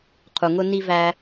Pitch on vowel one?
low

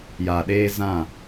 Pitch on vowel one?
low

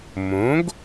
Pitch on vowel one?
rising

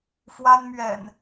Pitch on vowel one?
high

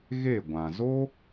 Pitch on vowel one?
falling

